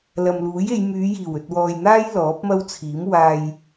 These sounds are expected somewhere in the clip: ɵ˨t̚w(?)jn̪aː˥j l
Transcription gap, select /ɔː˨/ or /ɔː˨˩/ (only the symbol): ɔː˨